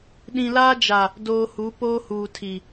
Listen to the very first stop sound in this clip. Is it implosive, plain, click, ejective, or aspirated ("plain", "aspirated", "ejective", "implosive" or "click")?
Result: implosive